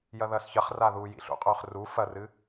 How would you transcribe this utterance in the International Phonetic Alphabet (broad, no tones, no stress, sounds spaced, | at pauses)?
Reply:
j ɐ ð ɐː s ç ɐ χ r a ð uː j ḭ ɬ ṵ qʼ ɵː χ r u f ɐ r ɨ